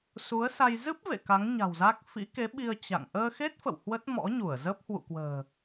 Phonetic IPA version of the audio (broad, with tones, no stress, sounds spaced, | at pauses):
s u˨˦ ə̯ s a˧ j z ɨ˦˥ p̚ v ḛ˧˨ k a˨˦ ŋ ɲ a̤˨˩ w z a˦˥ k̚ f ḭ˧˥ k e˨˦ ɓ i˧ ə̯ t͡ɕ a̰˧˨ ŋ ʔ əː˧ x e˦˥ t̚ f ə̰˧˨ w h w ə˦˥ t̚ m ɔ̰˧˥ ɲ u˧˩ ə̯ z əː˦˥ p̚ h w ṵ˧˨ k w ə̤ː˨˩